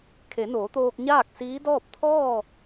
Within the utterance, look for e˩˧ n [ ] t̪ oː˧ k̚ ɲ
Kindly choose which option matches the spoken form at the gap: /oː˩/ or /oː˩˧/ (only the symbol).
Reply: oː˩˧